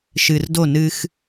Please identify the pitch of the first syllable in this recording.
low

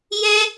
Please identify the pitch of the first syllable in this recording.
high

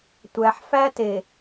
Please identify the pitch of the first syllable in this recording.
low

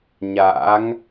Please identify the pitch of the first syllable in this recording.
rising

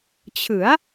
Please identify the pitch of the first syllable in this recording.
rising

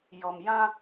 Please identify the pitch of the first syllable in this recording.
low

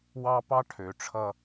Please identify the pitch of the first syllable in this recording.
high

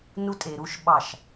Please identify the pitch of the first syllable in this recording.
high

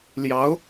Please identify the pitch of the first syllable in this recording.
rising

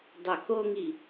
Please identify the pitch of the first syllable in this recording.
low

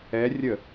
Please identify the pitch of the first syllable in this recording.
rising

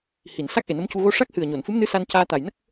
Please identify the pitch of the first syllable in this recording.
low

